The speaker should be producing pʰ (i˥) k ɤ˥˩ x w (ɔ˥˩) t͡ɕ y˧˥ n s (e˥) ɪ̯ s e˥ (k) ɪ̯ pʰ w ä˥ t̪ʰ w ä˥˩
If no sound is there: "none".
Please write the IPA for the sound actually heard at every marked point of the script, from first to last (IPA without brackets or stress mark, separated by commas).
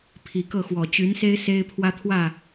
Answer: i˨˩, ɔ˨˩, e˥, none